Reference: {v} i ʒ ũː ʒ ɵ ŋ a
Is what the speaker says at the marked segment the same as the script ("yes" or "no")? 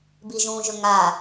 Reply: no